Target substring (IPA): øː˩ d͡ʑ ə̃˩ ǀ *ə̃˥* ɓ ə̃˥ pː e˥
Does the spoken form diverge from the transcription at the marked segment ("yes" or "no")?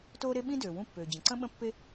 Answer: no